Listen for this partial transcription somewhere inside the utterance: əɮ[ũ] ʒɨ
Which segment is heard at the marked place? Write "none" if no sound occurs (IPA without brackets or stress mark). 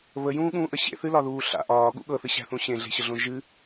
õ